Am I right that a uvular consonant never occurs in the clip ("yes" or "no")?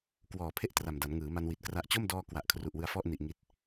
yes